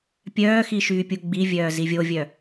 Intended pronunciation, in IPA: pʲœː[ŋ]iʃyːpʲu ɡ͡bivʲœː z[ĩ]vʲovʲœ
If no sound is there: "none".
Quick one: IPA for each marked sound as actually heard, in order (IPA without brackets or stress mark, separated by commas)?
x, i